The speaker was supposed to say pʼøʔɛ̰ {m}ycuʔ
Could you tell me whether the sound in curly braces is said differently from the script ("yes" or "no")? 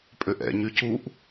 yes